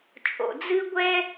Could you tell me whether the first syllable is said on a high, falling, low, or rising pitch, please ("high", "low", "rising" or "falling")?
low